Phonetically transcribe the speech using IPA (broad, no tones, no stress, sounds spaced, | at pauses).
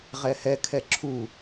ʁ ɛ h ɛ kʰ ɛ ǁʰ u